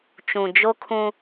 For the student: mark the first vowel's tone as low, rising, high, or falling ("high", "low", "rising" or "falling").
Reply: low